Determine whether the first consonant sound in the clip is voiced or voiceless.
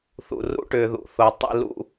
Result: voiceless